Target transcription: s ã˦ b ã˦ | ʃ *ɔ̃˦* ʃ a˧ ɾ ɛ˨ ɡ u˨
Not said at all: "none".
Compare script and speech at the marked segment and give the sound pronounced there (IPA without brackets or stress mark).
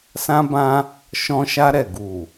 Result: ɔ̃˧